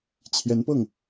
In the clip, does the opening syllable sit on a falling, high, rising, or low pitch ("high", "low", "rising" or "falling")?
rising